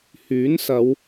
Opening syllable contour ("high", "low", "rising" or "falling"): rising